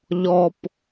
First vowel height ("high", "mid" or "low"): mid